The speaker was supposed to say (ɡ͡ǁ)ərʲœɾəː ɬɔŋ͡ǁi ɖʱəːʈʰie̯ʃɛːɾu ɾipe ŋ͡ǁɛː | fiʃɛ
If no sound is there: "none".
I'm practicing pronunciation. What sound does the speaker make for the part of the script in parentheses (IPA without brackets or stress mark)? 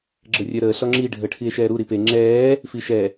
ɡ͡ǁ